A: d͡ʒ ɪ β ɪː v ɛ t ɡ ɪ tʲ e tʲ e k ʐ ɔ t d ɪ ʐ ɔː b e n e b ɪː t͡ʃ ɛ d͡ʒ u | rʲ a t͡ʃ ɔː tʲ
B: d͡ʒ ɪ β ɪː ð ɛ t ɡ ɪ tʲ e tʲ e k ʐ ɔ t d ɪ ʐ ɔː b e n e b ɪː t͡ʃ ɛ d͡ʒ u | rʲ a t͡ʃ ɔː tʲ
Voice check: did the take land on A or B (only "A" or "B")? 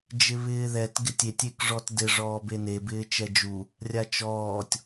B